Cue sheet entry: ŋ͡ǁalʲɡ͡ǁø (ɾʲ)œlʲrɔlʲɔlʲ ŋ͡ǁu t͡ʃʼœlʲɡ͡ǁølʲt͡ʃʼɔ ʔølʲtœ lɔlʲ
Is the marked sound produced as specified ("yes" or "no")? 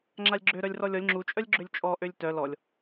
no